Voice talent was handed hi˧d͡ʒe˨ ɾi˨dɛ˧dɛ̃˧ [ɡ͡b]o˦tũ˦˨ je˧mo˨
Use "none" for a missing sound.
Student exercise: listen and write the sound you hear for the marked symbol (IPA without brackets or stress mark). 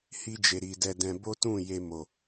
b